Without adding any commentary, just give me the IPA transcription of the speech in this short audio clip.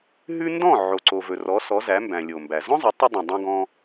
ɦ ʉ˥ n d ɔ̃˥˩ ʕ o˩ ǀ o˩ v ɵ˩ r ɔ˩˥ s ɔ˩˥ z æ˩˥ m b æ̃˩ lʲ o˩ m b æ˩ z ɔ̃˥ zˤ ɵ˩˥ tˤ ɵ˧ dˤ ũ˩ dˤ õ˧ ɡ ɔ̃˧

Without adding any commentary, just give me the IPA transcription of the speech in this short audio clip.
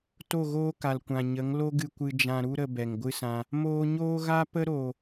t o˦˨ ɣ oː˦ k a˨ l kʷ ã˨ ɲ ə˨˦ ŋ l o˦ ɡ ɨ˧ kʷ ɨ˧ d͡ʒ ã˧ ɾ u˦ ɾ ə˧ b ɛ˨ ŋ ɡʷ ɨ˦ s ã˧ | m oː˧ ɲ oː˦ ɣ a˦ p ə˦ ɾ o˨

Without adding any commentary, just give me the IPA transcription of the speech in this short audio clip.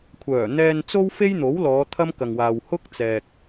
kʷʰ œː˨˩ n̪ ɛː˧ n t͡s o˥ w f e˥ j n̪ o˨˥ w l ɔː˨˧ t̪ʰ ɐ˥ m k ɐ˨ ŋ w aː˨ w h ʊ˥ k̚ t͡s ɛː˨ k̚

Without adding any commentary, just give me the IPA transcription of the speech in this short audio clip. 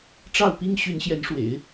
ʈ͡ʂ ɑ˥˩ ʊ̯ p i˥ ŋ ɕ y˧˥ n ɕ j ɛ˧˥ n ʂ w ḛ˨˩˦ ɪ̯

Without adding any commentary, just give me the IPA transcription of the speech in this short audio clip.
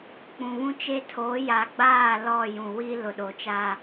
k͡p ũ˨ β ũ˦ t͡ʃ e˦ tʰ oː˨˦ j a˨ ɡ͡b aː˦˨ l ɔ˦˨ j ũ˨ w i˦ l ʊ˨ ɗ o˨ t͡ʃ aː˦

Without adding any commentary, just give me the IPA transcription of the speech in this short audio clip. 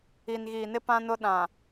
i˨ n ɣ iː˨ n ɪ˦ p ã˦ n ʊ˦ ɗ ã˨

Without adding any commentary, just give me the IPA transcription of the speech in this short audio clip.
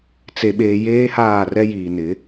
t͡s e˨ ɓ eː˨ j eː˦ h aː˦˨ r ɛ˦ j iː˨ n ɪ˨˦

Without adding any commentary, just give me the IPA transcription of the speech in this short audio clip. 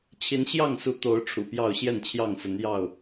t͡ɕʰ i˨˦ n ɕ j ɑ˥˨ ŋ s u˨˦ t̪ o˨˦ ʊ̯ ʈ͡ʂʰ ṵ˨˩ p j ɑ˥˨ ʊ̯ ɕ j ɛ˥˨ n t͡ɕʰ j ɑ˥˨ ŋ s ə˨˦ n j ɑ˥˨ ʊ̯

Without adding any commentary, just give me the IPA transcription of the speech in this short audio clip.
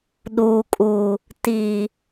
ɗ uː˨ kʼ uː˨ | t iː˨

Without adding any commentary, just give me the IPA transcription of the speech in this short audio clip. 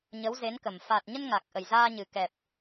ɲ ə˨˦ w z e˨˦ n k ə˨˩ m f a˨˩ t̚ ɲ ə˧ n ŋ a˨˩ k̚ ʔ ə˨˩ j z aː˧ ɲ ɨ˨˩ k ɛ˨˩ p̚

